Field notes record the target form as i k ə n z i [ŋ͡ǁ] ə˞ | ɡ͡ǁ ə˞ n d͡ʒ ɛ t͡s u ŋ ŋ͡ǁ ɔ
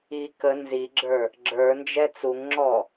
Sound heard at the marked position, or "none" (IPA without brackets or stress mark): ɡ͡ǁ